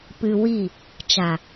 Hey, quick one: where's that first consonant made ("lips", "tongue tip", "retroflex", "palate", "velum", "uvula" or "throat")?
lips